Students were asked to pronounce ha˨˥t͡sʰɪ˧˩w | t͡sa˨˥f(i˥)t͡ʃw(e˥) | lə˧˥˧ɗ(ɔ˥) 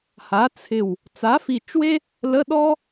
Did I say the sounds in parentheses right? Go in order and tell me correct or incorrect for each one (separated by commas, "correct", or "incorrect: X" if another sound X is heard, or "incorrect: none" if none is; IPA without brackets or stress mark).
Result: incorrect: i˧˩, correct, correct